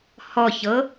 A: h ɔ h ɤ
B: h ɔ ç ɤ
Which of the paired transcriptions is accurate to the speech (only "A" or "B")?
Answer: B